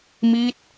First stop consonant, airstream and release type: plain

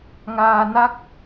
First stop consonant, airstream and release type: plain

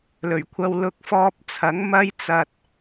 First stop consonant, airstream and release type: aspirated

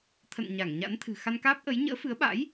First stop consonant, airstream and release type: aspirated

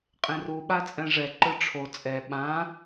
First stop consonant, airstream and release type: ejective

